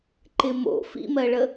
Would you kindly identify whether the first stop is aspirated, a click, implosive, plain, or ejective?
click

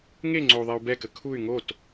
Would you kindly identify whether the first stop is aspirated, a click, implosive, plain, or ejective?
click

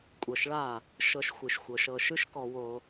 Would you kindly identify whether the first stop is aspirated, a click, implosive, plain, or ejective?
ejective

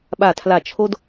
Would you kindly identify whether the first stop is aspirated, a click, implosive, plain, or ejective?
implosive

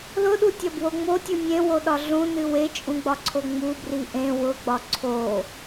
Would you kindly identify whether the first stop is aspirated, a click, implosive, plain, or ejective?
implosive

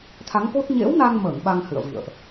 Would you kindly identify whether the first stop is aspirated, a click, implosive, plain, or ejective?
aspirated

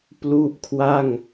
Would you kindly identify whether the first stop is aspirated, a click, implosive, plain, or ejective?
plain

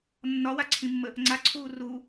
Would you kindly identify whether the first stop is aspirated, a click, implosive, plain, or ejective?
click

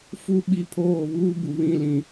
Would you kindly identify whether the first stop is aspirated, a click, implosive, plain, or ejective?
implosive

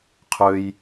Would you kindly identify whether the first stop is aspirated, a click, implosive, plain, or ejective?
aspirated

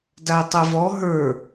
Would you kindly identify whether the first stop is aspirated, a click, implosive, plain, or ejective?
plain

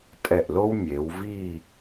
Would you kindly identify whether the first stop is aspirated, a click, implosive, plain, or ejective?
ejective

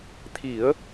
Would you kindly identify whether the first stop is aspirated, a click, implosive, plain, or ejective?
aspirated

